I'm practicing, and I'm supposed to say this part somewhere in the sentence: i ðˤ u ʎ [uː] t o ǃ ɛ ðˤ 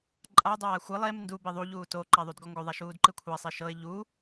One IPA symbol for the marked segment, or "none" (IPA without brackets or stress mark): uː